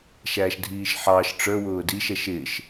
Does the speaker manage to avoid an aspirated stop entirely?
yes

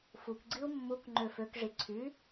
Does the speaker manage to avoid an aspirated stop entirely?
no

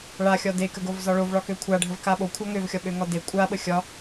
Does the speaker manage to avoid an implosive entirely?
no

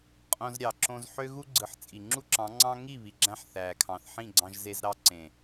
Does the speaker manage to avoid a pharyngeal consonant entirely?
no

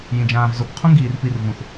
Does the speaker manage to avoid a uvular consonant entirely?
no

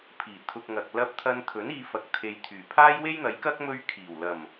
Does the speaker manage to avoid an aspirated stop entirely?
no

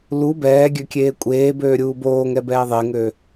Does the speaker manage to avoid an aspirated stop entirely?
yes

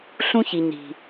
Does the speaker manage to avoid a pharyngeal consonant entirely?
yes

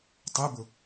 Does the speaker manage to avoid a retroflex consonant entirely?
yes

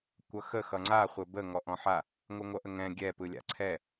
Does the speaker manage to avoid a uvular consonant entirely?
no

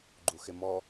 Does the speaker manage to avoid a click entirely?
no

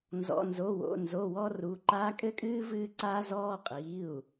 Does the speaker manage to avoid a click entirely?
no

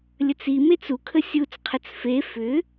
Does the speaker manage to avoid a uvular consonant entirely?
no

